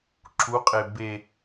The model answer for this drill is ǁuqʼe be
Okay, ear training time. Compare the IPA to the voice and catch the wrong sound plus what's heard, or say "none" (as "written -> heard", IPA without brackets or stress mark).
none